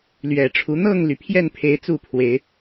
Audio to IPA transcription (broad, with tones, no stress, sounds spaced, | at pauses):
l ɥ ɛ˨˩ ʈ͡ʂʰ u˨˦ n̪ ɤ˥˨ ŋ l y˩ pʰ j ɛ˥˨ n pʰ e˨˦ ɪ̯ t͡s u˥˨ pʰ w e˨˦ ɪ̯